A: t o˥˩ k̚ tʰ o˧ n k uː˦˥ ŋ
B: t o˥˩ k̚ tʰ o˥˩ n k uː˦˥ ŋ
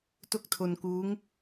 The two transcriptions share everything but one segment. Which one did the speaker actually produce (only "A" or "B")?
A